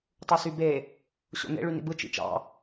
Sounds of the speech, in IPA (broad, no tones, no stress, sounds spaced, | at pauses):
tˤ u s y b e | ɕ o̰ n ḛ ɭ y n ḭ b ɯ t͡ʃ ḭ t͡ʃ ɑ̰